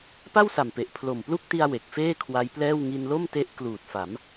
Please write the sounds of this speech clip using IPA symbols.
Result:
p a˥˩ w s a˨˩ m p e˨˩ ʔ pʰ l o˨˩ m p l u˥˩ k̚ t i˧ a̯ w e˨˩ k̚ f eː˥˩ kʰ w a˦˥ j p l ɛː˥˩ w ŋ i˧ n l o˥˩ m t e˦˥ ʔ k l uː˨˩ t̚ f a˩˦ m

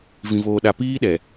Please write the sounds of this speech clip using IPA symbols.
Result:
v ĩ˨ v oː˨ ɗ a˨ p iː˦ ɗ ɛ˨

